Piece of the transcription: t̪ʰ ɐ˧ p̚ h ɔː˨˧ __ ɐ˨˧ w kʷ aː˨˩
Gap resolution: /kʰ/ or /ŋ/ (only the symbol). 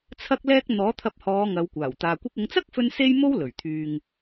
ŋ